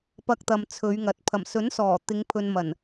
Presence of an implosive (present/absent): absent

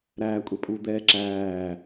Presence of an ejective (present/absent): present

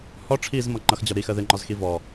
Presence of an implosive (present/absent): absent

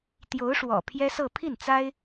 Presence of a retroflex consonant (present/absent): present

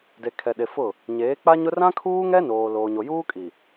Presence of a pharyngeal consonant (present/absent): absent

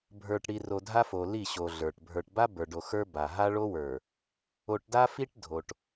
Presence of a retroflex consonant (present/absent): present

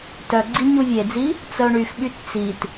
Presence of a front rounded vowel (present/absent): present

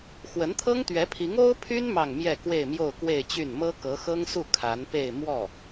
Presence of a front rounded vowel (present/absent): present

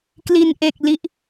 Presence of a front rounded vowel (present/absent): absent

